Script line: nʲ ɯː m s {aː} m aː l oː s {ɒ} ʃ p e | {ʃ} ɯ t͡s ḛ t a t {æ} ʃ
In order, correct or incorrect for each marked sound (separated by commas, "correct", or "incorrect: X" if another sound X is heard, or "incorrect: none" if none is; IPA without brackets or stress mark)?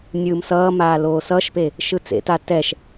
incorrect: ʌː, incorrect: ʌ, correct, incorrect: ɛ